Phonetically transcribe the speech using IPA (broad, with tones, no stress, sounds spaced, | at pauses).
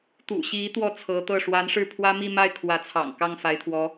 t̪ ṵ˨˩ ɕ i˧˥ t̪ w ɔ˥˩ t͡sʰ ɤ˧˥ t̪ ɤ˥˩ ʂ w a˧˥ n ʂ ɻ̩˥˩ pʰ w ä˥ m i˥˧ m a˥˩ ɪ̯ kʰ w ä˧˥ t͡sʰ ɑ̰˨˩ ŋ k ɑ˥˩ ŋ f a˧˥ ɪ̯ t̪ʰ w ɔ˧˥